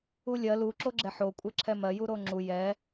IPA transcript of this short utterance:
ulʲɜ lu ǁoɡ͡ǁɛħo kʷʼɛǁʰɛmɜ juɾoŋ͡ǁu jɛ

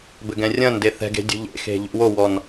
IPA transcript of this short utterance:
bɘɡɛ̃rʲɐ̃nde θɛ̤ɡe̤ dʲṳʎḛxe̤ ʎṵwowɔn

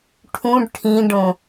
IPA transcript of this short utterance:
ʈʰũɖ ʈʰĩɖõ

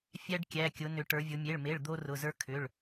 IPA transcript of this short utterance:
fʲæ˦ɖkʲæ˩˧˩kʲʊ˩˧ nʏ˩˧ʈə˞˩˧vʲʊ˩˧ mʲe˩˧˩ɭme˩˧˩ɭ d̪o˦rʊ˩˧˩zə˞˦ kʰʏ˩˧˩ɭ

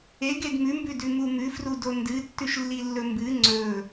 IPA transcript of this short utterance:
eɡed mʉmbʉdʉ mumʉfru dondɨtːʉʃ lːilːɵmbɨ ŋ͡ǀɵ

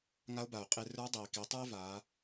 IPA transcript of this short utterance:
ŋa˧˥o̯ba˩o̯qʼe˧ rə˞˧˥ dˤeː˩ki˩˧tˤə˞˥e̯vaː˩˧

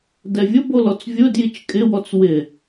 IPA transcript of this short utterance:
dɛvʲʊbolɔt͡s vʲʊ djit͡ʃkʼɪwɔt͡s wɪ

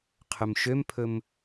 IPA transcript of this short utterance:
qʰɵmʃømpʰɵm

